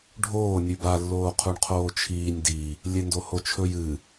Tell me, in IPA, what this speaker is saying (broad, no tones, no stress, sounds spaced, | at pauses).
ɖʱ oː nʲ ʉ b a lː oː qʰ u ɳ qʰ oː t͡ʃʰ iː nʲ d i | lʲ e n d o h o t͡ʃʰ ɵ j ɨ